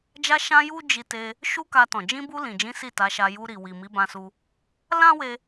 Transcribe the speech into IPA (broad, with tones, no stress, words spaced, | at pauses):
d͡ʒa˧ʃã˧ ju˦d͡ʒi˧te˧ | ʃu˦ka˧tɔ̃˨ d͡ʒĩ˧bu˧ lĩ˨d͡ʒĩ˨˦ si˦˨ta˨˦ʃa˧ ju˧ɾi˨wi˨ mi˨˦bã˧su˧ | lã˦we˧